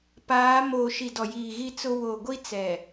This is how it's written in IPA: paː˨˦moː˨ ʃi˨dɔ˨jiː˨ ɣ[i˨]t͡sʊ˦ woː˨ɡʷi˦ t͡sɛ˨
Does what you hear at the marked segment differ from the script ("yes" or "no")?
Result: yes